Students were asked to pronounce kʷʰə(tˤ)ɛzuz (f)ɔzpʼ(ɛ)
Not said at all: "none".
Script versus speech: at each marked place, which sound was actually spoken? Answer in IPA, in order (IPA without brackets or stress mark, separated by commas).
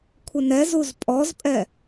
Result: n, pʼ, ɛ